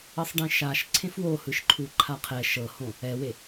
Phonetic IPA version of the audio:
ɤ sˤ ɖ ẽ ʃ a ʃ ǀʰ ẽ f w o h ɯ ʃ ǃʰ u ǃʰ a qʰ ɛ ʃ ɤ h õ | ɛ w e

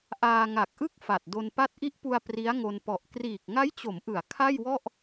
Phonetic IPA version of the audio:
ʔ aː˧ ŋ a˨˩ k̚ ʔ ɯ˥˩ k̚ f a˨˩ t̚ d o˧ n p a˥˩ t̚ ʔ i˦˥ ʔ p u˧ a̯ p r i˦˥ a̯ ŋ o˧ n p ɔ˨˩ ʔ k r iː˨˩ k̚ ŋ a˦˥ j t͡ɕ o˩˦ m ʔ ɯ˩˦ a̯ kʰ a˥˩ j w ɔ˥˩ ʔ

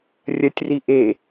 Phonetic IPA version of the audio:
rʲ ɐ tʲ r i ʔ e

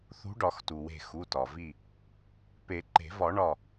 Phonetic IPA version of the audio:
θ ṳ˨˥ ɖ ɒ˨˩˦ x t u˩ w e̤˧˩ x u˩˧˩ t ɒ˩ v i˧˩ | p e˨˩˦ ǃ e̤˨˩˦ v ɒ˨˩˦ ɳ ɒ˧˩

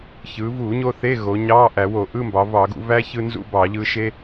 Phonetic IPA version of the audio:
ç ɯː˩˧ v uː˧˩˧ ɲ o˧ θ e˧˥˧ ɣ o˩˧ ɲ ɑː˧˥˧ ʔ æ˧˩˧ w o˧˩˧ ʔ ɯ˧˥˧ m b ɑ˩˧ v ɑ˧˩˧ ɡ ṵ˧ v æ˥ ç ɯ˧ n z ṵ˧˥˧ b ɑ˧˩˧ ʎ ɯ˧ ʃ e˥

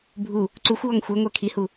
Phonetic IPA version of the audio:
bʱ u | ǀ u xʷ w ɔ ŋ xʷ e ŋʷ ɛ kʰ i h u

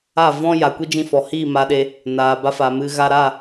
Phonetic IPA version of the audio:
a˦˨ v ɔ̃˦ j a˨ kʷ i˦ d͡ʒ ĩ˧ f ɔ˨ h iː˦˨ m a˧ ɗ e˧ | n aː˨ b a˧ f a˨ m ɨ˧ ɣ a˧ ɾ a˦˨

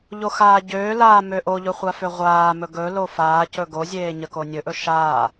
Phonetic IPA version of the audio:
ʎ o x aː ɟ øː l aː m ø ʔ o ʎ ɵ χʷ a f ø ʁʷ aː m ɵ ɡ ɵ l o f aː c ɵ ɡ o zʲ eː ɲ ə k o nʲ ɵ ʔ ɵ ʃ aː

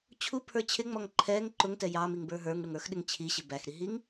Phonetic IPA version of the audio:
t͡ɕʰ u pʰ ə˞ t͡ɕʰ ɪ ŋ͡m ɔ ŋ ǃʰ ɛ ŋ ǃ ʊ ŋ t ɛ j ɑ m i ŋ b ə˞ ɦ ə˞ ŋ ɽ ʊ ŋ ə˞ x ɗ ɪ ŋ t͡ɕʰ i ɕ ɪ b æ x ɾ i ɦ i ŋ

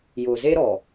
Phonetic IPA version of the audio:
j ʊ˨ z e˦ ɾ ɔ˨

